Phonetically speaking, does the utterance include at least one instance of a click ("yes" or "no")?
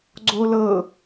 yes